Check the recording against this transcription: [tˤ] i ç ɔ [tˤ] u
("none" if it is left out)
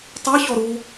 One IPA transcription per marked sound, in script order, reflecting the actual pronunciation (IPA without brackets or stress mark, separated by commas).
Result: tˤ, ɾ